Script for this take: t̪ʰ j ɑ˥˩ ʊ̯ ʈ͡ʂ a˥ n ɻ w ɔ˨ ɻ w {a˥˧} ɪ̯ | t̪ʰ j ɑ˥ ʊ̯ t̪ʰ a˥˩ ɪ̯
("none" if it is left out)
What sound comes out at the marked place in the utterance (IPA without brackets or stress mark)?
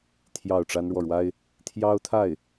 a˥